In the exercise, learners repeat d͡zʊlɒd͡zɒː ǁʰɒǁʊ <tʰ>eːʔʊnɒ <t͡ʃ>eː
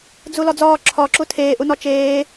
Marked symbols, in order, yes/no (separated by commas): yes, yes